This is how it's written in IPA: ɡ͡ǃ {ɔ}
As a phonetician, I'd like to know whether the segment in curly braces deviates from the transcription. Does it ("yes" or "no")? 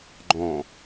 yes